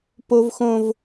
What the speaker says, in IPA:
po˦vxõ˦v

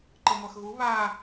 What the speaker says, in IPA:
ǃɤŋʷaxɣu βa

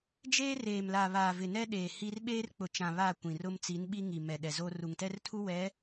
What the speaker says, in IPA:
d͡ʒeː˦reː˨mla˨ βaː˨vɪ˨nɛ˦ɗeː˨ hi˦r ɓeː˦rk͡pʊ˨t͡ʃã˨ βa˦˨kʷĩ˨rʊ˦m t͡si˨˦nɓi˦ŋi˨ mɛ˨ɗɛ˨zo˦ ru˨ŋtɛ˦rtʰu˦ wɛ˨˦

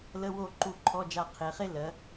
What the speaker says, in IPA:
lə˧˥˧wo˦˨ ǃu˦˨ǃʰɔ˧˥˧d͡ʒa˦˨ qʰe˨˦χe˥ lɜ˨˦

